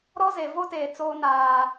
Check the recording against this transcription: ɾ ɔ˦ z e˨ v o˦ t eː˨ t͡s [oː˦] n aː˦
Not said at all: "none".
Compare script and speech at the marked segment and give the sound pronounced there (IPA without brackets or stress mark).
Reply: oː˦